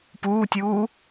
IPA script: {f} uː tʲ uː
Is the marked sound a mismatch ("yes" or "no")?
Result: yes